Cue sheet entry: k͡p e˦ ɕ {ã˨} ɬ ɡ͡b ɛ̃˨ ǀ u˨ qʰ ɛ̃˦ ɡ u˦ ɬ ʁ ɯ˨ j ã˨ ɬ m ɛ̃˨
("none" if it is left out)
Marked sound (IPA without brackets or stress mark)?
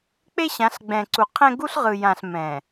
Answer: ã˨˦